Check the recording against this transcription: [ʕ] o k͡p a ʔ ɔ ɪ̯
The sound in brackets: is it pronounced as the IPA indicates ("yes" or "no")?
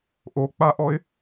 no